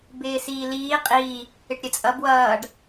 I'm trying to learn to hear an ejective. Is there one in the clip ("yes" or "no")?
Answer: yes